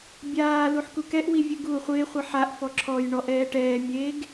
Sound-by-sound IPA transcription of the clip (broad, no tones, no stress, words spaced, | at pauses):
bʲaːluħ kukɛʔwi vʲʊɡuː χʷɪːχʷi ħaʔfɔ ǁʰɔj ɳɔʔ ɛːʈɛːmʲeːɡ